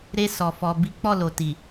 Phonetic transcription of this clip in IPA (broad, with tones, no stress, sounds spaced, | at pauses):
ɾ e˧ s ɔ˨ f ɔ˨ b i˨˦ k͡p ɔ˦˨ l o˨ t i˨